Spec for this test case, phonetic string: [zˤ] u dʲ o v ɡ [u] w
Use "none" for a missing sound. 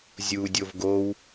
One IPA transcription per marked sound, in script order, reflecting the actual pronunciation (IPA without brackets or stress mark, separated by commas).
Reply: zʲ, o